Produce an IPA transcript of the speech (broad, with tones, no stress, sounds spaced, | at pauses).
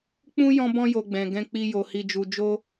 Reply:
k͡p ũ˦ j ɔ̃˦ b ɔ̃˦ j o˧ ɡ͡b ɛ̃˨ ɡ ɛ̃˧ k͡p i˧ j o˨ h i˧ d͡ʒ u˧ d͡ʒ o˦